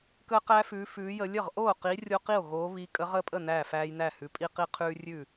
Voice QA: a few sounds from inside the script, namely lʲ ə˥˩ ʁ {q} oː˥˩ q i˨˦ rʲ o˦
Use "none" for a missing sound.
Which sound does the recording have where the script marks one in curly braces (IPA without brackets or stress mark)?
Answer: ʔ